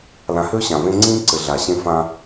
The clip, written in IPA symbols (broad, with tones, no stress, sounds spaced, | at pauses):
l ã˨ h ø˦ ɕ ã˨ v ẽ˦ ŋ͡ǀ ĩː˦ ǀ ɘ˨ ɮ a˨ ɕ ẽ˦ f ã˦